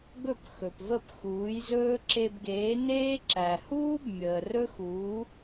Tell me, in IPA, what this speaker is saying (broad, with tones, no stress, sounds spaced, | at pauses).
ɡ ɵ˥˩ p x ɵ˩ p v ə˥˩ p x uː˩˥ j z ɵː˥ ǁ e˧ b ɡ eː˩˥ n eː˥ ǁ æ˩ h uː˥ b mʲ əː˩ r ɵ˥ x uː˩˥